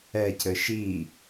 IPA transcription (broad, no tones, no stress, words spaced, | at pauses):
ɛcɘ ʃi